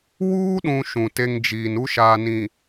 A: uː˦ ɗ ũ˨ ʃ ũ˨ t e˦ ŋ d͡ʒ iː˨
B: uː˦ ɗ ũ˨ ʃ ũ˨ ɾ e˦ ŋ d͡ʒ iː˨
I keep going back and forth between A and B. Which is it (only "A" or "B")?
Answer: A